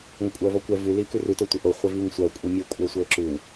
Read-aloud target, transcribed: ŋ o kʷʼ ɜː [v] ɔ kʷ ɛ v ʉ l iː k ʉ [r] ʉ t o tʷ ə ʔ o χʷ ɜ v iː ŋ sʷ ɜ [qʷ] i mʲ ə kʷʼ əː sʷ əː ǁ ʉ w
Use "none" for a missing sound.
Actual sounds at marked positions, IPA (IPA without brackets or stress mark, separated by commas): v, r, kʷʼ